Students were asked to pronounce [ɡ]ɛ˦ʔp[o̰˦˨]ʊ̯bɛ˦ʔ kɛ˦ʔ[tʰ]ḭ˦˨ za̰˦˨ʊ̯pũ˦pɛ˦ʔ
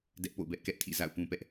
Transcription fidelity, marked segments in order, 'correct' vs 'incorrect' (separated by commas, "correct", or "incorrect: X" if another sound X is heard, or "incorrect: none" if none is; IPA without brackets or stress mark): incorrect: d, correct, correct